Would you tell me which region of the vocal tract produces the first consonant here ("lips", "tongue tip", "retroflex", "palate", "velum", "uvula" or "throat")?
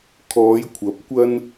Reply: velum